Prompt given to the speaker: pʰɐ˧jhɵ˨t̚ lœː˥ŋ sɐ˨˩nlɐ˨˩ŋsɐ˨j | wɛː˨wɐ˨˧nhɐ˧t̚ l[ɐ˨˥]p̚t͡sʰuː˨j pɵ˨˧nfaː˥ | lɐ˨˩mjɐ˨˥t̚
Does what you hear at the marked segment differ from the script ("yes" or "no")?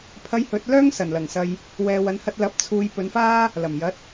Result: no